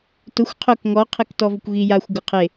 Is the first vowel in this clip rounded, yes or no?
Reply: yes